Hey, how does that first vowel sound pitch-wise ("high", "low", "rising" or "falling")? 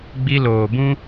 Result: high